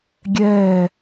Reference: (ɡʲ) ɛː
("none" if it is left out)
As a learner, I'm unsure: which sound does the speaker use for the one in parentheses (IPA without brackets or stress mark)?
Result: ɡʲ